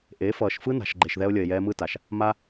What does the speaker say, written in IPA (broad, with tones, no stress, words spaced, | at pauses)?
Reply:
ʔe˨˦fʌː˨ʃ fɯ˦na̤˨ʃ ɡ͡ǃe˨ʃðɛ˧o̯lʲʌ˨e̯jɛː˧ mɯ˧ta˨ʃ | ma˧